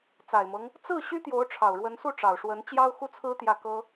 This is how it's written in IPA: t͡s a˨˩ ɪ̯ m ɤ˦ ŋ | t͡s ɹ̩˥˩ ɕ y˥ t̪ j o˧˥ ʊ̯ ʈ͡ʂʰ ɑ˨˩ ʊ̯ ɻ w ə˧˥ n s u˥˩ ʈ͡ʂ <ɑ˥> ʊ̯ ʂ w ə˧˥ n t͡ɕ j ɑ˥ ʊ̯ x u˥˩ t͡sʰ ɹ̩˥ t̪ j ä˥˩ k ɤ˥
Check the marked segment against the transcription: incorrect: ɑ˨˩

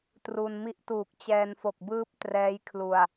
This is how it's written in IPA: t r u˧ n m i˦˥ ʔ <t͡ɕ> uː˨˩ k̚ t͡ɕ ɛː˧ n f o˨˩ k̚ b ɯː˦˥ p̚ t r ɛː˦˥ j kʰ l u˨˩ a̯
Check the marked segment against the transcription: incorrect: t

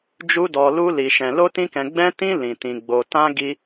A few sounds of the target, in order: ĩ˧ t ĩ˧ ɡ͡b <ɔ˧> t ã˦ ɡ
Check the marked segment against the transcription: incorrect: o˧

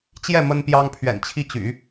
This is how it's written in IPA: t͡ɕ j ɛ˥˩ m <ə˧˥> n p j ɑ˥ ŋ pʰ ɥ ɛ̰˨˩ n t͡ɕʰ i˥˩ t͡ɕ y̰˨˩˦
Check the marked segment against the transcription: incorrect: ə˥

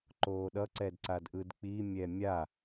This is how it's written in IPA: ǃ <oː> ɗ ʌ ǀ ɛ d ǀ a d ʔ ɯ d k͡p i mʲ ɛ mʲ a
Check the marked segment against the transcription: correct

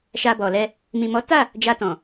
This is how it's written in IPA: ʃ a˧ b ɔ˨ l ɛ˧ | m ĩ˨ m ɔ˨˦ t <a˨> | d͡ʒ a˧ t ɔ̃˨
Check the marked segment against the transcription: incorrect: a˦˨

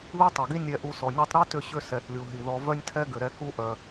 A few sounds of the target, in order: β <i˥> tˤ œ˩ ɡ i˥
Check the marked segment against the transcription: correct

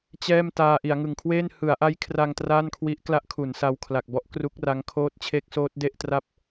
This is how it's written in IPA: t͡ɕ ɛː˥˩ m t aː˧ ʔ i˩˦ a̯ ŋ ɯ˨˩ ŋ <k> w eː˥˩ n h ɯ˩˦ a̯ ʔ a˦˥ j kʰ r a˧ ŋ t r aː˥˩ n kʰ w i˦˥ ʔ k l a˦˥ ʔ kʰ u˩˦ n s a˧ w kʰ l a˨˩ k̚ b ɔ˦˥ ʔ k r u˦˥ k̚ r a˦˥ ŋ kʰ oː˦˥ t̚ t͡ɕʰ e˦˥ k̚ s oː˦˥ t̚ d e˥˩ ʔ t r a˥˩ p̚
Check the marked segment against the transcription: incorrect: kʰ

